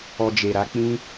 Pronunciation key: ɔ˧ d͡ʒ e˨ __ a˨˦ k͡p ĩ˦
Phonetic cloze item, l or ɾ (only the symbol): ɾ